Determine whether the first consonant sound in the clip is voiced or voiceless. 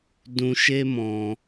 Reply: voiced